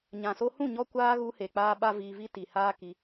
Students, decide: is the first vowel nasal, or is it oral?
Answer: nasal